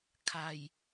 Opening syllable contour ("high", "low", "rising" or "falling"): low